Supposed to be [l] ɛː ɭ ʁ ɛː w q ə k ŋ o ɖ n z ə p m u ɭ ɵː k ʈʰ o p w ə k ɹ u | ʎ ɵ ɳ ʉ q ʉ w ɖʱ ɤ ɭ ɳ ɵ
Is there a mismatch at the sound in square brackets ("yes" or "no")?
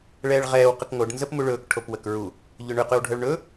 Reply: yes